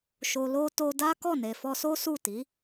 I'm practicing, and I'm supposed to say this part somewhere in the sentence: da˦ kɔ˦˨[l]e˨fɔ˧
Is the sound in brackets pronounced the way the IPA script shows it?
no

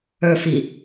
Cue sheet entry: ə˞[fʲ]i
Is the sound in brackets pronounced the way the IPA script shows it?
no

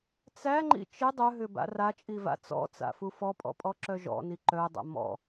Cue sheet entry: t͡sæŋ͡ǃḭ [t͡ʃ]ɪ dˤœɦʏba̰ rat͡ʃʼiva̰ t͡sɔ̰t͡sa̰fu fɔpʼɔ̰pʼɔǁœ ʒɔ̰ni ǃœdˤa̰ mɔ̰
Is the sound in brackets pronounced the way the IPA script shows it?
yes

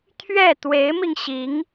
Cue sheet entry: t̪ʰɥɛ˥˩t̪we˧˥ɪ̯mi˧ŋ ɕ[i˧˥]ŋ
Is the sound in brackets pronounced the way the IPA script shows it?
yes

